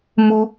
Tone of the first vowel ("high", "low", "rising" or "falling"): high